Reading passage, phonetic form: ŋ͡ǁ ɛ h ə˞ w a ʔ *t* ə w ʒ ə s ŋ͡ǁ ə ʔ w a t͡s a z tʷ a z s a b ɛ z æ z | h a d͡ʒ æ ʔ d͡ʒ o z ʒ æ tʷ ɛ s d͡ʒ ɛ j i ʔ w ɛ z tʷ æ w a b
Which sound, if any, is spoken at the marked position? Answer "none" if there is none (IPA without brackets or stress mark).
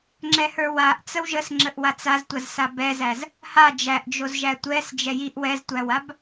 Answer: t͡s